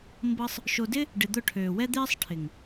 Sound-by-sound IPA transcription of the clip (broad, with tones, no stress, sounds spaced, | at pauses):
m b ɤ˦ sˤ | ʃ o˧ d ɪ˦ | ɖ ɪ˧ d̪ ʊ˦˨ ʈʰ øː˨ w ɛ˦ d̪ ɪː˦ sˤ ʈʰ ɪ˨ ŋ